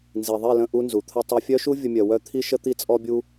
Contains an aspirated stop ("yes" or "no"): yes